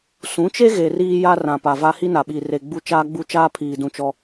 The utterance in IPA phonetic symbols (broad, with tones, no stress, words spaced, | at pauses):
sũ˨˦t͡ʃe˦ɣe˨ riː˦ja˦ rã˨pa˨va˦ hi˦na˨ɓiː˨re˨ ɡ͡bu˦ t͡ʃaː˦ɡ͡bu˦t͡ʃaː˦ pʰiː˨dũ˨ t͡ʃɔ˦